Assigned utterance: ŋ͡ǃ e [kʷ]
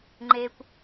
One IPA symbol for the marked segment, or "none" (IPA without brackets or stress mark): kʷ